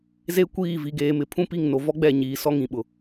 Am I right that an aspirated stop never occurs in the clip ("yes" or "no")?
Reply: no